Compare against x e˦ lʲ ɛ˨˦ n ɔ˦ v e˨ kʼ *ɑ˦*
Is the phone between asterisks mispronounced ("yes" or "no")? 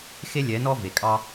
no